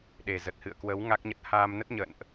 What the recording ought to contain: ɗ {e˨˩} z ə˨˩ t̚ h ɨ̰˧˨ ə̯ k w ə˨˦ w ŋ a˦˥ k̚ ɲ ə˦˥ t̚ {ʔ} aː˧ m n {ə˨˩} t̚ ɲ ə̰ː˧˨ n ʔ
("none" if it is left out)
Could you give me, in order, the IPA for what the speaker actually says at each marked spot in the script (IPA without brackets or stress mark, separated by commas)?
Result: e˨˩, h, ə˦˥